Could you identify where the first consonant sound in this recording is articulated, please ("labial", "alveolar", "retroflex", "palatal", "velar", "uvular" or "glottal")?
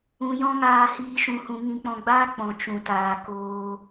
palatal